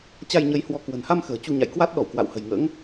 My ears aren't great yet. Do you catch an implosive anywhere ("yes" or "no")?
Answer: yes